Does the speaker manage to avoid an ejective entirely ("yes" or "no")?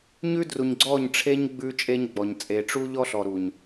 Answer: no